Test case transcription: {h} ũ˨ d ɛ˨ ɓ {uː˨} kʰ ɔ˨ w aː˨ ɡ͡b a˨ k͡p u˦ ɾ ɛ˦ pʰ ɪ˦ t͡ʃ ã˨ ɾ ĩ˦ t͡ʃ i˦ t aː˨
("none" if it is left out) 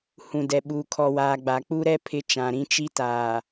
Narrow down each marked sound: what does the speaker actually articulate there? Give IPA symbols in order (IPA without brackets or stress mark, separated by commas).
h, uː˨